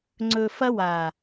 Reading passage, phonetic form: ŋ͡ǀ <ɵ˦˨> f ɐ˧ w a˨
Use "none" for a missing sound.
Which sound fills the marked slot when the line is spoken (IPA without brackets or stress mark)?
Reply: ɵ˨